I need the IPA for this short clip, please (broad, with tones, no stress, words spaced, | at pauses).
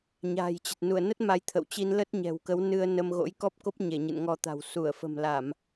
ɲa̤ː˨˩jt͡ɕə˨˩t̚ nu˧˩ə̯nə˦˥t̚ ma˨˦jt̪ʰə̰˧˨wt͡ɕi˧n lə˦˥t̚ɲɛ̤˨˩wkə˨˦w nɨ˧ə̯nə˧m ɣo̰˧˥jkɔ˦˥p̚ko˦˥p̚ ɲe˧˩ɲɨ̰˧˨nŋɔ˧t̪a̤˨˩w su˧˩ə̯fə̤˨˩mla˧˩˨m